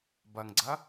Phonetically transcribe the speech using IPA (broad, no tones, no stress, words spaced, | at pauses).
bɐŋɡ͡ǀɐ